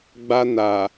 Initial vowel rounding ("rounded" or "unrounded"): unrounded